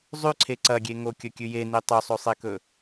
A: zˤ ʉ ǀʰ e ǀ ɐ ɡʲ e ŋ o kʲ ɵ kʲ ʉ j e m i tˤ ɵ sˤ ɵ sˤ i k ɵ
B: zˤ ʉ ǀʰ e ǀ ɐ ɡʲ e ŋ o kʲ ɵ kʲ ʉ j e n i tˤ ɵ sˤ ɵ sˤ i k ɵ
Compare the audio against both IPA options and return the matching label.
B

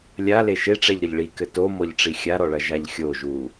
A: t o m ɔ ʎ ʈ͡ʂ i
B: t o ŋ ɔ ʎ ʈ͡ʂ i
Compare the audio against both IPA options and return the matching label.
A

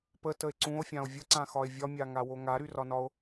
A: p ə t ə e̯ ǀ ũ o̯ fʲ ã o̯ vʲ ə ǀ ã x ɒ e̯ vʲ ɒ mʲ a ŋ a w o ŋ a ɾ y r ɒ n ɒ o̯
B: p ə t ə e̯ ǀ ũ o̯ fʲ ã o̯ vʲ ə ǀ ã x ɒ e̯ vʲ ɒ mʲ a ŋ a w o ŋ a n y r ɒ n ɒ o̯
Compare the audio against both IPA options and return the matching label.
A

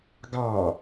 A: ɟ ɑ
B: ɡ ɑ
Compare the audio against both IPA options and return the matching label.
B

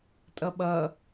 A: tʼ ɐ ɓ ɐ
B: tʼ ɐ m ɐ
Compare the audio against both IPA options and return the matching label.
A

